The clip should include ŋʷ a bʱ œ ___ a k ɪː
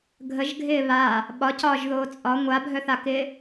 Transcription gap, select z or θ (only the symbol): θ